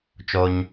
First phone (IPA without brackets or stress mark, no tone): t͡ʃ